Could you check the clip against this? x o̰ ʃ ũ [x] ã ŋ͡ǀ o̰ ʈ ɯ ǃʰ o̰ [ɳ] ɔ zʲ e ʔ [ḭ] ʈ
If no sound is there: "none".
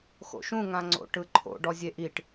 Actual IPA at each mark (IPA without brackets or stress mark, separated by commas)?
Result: ŋ, ɖ, i